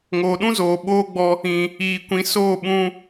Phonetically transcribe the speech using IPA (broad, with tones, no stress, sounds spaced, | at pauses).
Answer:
ŋ oː˨ ɗ ũ˦ z oː˨ ɓ oː˦ ɡ͡b ɔ˧ | ĩ˨ | iː˨ kʷ ĩ˨˦ s oː˦˨ ɓ ũ˧